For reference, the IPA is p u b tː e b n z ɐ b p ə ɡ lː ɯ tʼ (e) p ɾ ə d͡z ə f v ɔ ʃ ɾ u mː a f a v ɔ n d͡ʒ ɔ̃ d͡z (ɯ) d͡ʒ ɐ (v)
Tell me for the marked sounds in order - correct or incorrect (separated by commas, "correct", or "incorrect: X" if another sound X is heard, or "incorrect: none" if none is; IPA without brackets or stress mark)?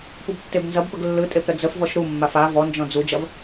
correct, incorrect: u, correct